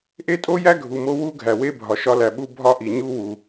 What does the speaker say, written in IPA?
ʔ e˥ tʼ o˥ j æ˥ ɡʱ u˨ m o˥ w u˥ ɡʱ æ˨ w e˥ bʱ ɒ˨ ʃ ɒ˧˥ l æ˨ ɓ u˥ bʱ ɒ˥ ʔ i˨ ɲ u˥ w u˨

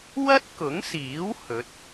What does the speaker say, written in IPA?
w ɐ˥ t̚ k ʊ˨˥ ŋ s iː˨˥ w h ɵ˨˥ t̚

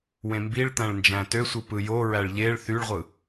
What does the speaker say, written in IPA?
w ẽ m b i ɭ t̪ æ̃ ɭ n d͡ʒ æ̃ t ø sʷ ɯ p ɯ j o ɹ æ ɭ ʎ e ɭ θ y ɭ ʁʷ ɯ

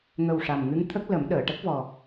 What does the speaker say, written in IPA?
ŋ ə˨˩ w ʂ a˨˩ m ŋ ɨ˧˥ ŋ t̪ʰ ə˦˥ k̚ l ə˨˩˦ m ɗ əː˨˩˨ ʈ ə˦˥ k̚ v ɔ˨˩

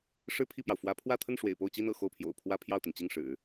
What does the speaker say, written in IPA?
ʂ ɻ̩˥˧ pʰ i˥˩ p j ɑ˩ ʊ̯ f w ä˧˥ pʰ w ä˥˧ t̪ʰ ə˥˩ n ʂ w ḛ˨˩ ɪ̯ p o˥˩ ʊ̯ t͡ɕ i˥ n ɤ̰˨˩ x o˥˩ ʊ̯ pʰ j o̰˨˩ ʊ̯ pʰ w ä˥ pʰ j ɑ˥˩ ʊ̯ t̪ i˩ n t͡ɕ i˥˩ ŋ ʂ ɻ̩˨˩˦

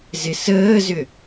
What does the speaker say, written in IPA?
z ɪ s əː z ʏ

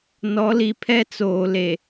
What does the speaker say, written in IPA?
n ɔ˨˦ l i˨ pʰ ɛ˦ t͡s oː˨ l e˨

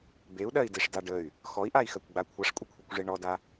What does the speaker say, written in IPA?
b e u̯ ɗ ɜ i̯ d e ʂ d a ɖ ə y̯ | x ɔ i̯ ʔ a i̯ x ɜ kʷ ɡ͡b a kʷʰ a ʂ kʷʼ ə kʷʰ œ kʷ ʐ e ɳ ɔ d a

